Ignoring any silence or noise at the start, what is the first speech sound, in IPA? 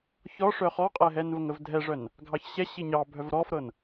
ç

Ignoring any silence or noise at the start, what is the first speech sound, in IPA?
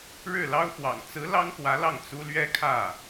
ɻ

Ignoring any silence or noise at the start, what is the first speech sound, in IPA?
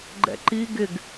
ɡ͡ǃ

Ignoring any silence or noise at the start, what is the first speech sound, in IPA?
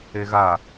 e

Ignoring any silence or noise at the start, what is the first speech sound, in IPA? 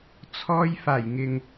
t͡sʰ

